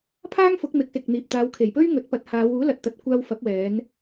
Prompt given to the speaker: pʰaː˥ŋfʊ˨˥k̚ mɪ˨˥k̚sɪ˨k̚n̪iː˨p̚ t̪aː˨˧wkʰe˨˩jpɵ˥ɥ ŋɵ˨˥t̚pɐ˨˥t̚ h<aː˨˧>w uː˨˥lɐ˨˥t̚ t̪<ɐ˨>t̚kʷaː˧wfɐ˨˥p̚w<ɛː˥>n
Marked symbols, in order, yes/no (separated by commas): yes, yes, no